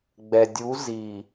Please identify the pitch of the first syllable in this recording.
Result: low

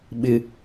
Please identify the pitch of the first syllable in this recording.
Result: high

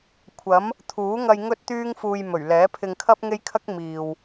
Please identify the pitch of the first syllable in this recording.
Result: rising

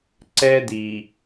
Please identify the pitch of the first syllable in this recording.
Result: high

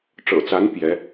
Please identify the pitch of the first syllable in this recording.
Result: low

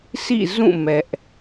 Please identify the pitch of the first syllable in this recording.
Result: falling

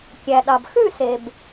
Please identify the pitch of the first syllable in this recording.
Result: low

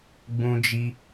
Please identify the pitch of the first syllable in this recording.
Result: high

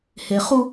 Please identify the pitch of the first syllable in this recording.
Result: low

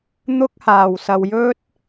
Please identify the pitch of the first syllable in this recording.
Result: high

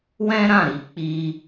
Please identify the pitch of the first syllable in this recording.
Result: high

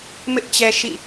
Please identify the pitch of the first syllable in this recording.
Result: high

